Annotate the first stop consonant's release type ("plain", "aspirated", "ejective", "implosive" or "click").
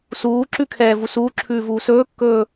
click